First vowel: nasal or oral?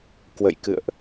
oral